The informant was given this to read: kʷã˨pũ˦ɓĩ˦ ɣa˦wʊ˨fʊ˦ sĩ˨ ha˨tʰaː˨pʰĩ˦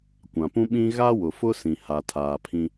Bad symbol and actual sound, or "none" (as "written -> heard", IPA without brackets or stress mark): none